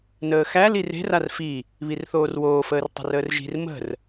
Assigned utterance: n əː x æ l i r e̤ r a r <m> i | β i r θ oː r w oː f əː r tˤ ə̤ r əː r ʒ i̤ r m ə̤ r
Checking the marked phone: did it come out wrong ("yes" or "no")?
yes